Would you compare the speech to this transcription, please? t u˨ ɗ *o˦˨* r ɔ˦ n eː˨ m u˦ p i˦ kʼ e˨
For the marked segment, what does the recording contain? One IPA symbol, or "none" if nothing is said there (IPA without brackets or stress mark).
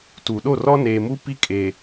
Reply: o˦˨